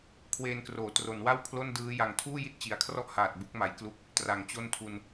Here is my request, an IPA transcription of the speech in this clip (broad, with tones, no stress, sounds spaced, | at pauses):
kʰ w eː˧ n k r oː˩˦ t r o˩˦ n w a˥˩ w pʰ l o˥˩ n d ɯː˦˥ j a˨˩ ŋ tʰ uː˥˩ j i˦˥ t̚ t͡ɕ i˨˩ a̯ kʰ r ɔ˥˩ ʔ h aː˨˩ t̚ b u˦˥ k̚ m a˨˩ j k l u˦˥ k̚ | t r a˨˩ ŋ t͡ɕ o˥˩ n tʰ u˧ n